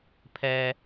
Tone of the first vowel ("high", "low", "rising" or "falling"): low